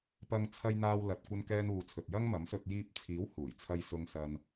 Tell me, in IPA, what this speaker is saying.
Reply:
pɐ˧ŋ t͡sʰɐ˧jn̪aː˧wlɐ˨t̚ kʷɐ˧nkɛː˧nuː˨t͡sʰɵ˨t̚ jɐ˥ŋmɐ˨˥msɵ˧t̚ jiː˧p̚t͡sʰiː˨˥w huː˨˩jt͡sʰɐ˧jsʊ˧ŋ sɐ˧n

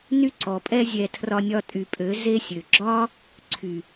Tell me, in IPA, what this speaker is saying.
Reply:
ny˦ǀɔ˨pʼɛ˦ zʲɛ˧ tʰrɒ˧nʲɒ˧tʼy˨pʼø˨˦ ze˦sʲø˨ ɡ͡ǁɒ˦ | ǀʰy˨

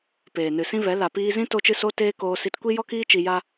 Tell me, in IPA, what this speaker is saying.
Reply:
peː˨nɨ˨sĩ˦vɛ˨˦ la˨piː˧zĩ˦ to˧t͡ʃɨ˧so˧teː˧ koː˧si˧tkʷi˦ jɔ˦kiː˦ t͡ʃi˧ja˦

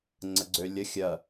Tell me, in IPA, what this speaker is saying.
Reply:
ŋ͡ǀəɡ͡ǀølʲə xʲɐ

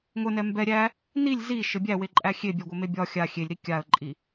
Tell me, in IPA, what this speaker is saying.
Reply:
ŋʷɘnɛ mbɛ ɾʲæ | nilʲ zi ʃɘbʲæweǃʼæ xʲebʲɛɡʷɘme bʲɒ xʲa xʲelʲɾi kʲaə̯ǃʼi

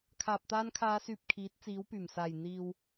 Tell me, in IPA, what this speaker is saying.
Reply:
kʰaː˨p̚t̪aː˧nkʰaː˨˧syː˨p̚ kʰiː˨˥t̚t͡siː˨˥wpyː˨˩m saː˨˩jn̪iː˨w

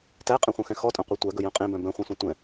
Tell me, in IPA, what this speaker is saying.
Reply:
tæqʼɛ̃χʷœ̃xɛ̃ xɔtʼœ̃qʷæ tʷæɡɵjœ̃ qʼẽbœ̃ bœ̃χʷɛ̃sʷẽ tʷɛ̃

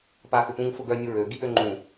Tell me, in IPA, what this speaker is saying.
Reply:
paxʏpũŋ fʊɡœ nʲʊɹø ɡiʔøŋ͡ǃũ

